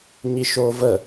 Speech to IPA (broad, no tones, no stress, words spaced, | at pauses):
ɲiʃoːvə